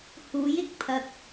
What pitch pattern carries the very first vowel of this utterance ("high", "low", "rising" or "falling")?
rising